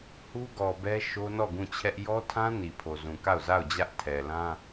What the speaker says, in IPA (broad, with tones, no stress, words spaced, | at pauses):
hu˦ɡɔ˨bɛ˦ ʃo˦nɔ˦˨ ɡũ˦˨t͡ɕʰɛ˦ʔ jɔ˦tʰã˦ ni˨pʰo˨zũ˨ka˦˨ʊ̯ za˦˨ʊ̯d͡ʑä˦ʔ tʰɛ˨lã˦